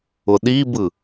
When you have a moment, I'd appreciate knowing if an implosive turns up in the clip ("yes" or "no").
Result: yes